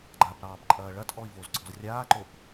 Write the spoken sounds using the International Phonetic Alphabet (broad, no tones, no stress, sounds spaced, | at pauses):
ɡ͡ǃ a p ɾ ɑː b ǃʼ ɐː ɭ ɐ tʼ ɔ i̯ v o z ǀ ɔ̤ z rʲ aː ǃ o p